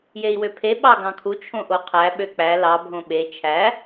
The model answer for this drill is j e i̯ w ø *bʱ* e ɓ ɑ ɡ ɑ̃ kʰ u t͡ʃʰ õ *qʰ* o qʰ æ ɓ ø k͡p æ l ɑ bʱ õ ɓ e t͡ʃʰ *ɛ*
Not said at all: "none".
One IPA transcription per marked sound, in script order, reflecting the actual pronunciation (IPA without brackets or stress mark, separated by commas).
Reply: pʰ, ʔ, æ